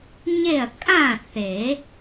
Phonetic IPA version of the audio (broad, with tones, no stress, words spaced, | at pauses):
ɲe˥˨ɐ̯ kʼã˥˨ θe˨˩˦